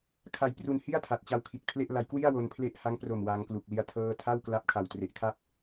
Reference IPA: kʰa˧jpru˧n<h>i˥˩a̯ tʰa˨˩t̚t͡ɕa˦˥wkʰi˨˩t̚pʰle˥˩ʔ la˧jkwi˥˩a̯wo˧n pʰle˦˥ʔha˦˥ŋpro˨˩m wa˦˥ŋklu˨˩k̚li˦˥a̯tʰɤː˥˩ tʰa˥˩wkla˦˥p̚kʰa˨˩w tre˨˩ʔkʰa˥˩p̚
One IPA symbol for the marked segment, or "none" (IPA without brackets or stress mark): h